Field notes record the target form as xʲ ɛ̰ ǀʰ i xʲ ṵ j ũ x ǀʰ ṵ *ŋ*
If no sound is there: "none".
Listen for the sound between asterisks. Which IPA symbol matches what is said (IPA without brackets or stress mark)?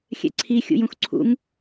ŋ